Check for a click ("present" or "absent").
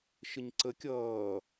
present